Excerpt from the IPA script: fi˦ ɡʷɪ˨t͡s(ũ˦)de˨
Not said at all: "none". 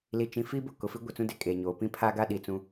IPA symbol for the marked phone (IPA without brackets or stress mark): ũ˦